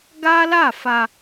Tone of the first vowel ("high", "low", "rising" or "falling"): high